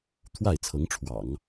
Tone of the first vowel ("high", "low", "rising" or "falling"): falling